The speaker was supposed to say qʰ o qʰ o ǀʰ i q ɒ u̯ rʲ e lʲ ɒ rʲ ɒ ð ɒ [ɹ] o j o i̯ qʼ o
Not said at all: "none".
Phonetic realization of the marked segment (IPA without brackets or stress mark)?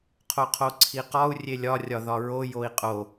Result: ɹ